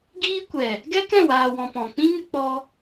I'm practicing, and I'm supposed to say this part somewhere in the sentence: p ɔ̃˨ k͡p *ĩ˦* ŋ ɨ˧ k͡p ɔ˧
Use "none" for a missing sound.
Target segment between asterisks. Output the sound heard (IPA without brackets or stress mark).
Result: ĩ˦